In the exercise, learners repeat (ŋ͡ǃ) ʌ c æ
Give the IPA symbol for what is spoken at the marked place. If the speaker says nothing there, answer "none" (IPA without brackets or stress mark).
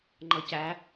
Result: ŋ͡ǃ